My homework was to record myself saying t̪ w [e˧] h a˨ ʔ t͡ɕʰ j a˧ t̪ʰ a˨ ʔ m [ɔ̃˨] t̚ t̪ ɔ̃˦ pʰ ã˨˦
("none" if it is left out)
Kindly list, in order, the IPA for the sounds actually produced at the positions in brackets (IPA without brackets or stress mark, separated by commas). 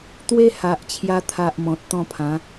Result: e˦, ɔ̃˨